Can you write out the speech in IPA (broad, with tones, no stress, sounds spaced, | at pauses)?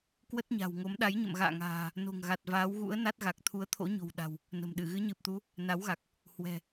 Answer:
k w ə˦˥ t̚ ɲ a̤˨˩ w ŋ o˨˦ m ɗ a˨˦ j ɲ ə̰˧˨ m ɣ a̰ː˧˨ ŋ a̤ː˨˩ | n o̤˨˩ ŋ ɣ a˨˩ t̚ v aː˨˦ w ɣ ṵ˧˥ ə̯ n a˦˥ t̚ ɣ a˨˩ k̚ t̪ʰ u˨˦ ə̯ t̪ʰ o̰˧˥ ɲ o̤˨˩ w ɗ a̤˨˩ w | n ə̤˨˩ m ɗ ɨ˧˩ ɣ ɨ˨˦ ɲ ɨ˨˩ p̚ t̪ u˨˦ | n a˨˦ w ɣ a˨˩ k̚ | h w ɛ̤˨˩